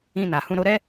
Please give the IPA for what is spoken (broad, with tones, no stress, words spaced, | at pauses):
ĩ˧na˨hũ˧ ɾo˧ɾɛ˦